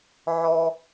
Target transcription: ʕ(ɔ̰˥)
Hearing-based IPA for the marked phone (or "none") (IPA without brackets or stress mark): ɔ˥